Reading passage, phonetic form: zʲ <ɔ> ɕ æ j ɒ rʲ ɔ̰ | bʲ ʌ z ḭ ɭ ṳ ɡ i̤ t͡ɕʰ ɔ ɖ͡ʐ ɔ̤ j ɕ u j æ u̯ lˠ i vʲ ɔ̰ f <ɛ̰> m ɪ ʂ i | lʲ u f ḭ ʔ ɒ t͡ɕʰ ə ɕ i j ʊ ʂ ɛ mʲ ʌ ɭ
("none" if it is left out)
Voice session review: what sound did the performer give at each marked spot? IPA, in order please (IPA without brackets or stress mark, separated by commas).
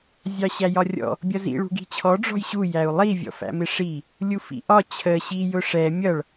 ɑ, æ̰